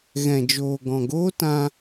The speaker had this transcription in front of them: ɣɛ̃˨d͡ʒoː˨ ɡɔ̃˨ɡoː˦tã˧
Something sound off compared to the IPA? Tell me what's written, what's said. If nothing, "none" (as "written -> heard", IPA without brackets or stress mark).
none